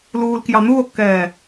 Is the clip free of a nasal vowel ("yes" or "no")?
yes